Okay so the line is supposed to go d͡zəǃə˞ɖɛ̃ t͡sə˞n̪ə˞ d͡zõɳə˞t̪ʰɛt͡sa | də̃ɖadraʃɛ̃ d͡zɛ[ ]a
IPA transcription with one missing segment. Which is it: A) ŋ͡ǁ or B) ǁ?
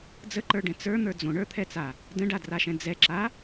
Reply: B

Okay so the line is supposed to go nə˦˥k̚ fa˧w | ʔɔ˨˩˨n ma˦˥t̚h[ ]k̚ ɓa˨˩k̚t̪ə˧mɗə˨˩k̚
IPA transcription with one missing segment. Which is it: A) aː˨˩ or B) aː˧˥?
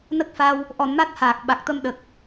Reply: A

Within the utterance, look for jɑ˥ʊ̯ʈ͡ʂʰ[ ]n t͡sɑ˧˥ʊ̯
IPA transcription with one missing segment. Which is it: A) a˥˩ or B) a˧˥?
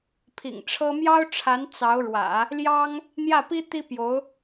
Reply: B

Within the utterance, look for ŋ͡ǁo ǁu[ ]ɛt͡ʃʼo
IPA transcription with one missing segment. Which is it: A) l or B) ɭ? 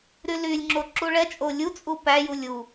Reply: B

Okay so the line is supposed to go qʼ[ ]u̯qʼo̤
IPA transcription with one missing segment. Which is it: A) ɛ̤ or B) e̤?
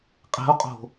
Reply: B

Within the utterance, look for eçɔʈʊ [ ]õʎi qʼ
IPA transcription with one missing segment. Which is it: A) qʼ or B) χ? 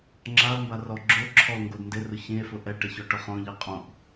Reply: B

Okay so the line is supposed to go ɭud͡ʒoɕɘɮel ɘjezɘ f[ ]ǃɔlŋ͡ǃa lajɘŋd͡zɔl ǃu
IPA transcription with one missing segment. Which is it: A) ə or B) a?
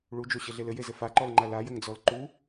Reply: B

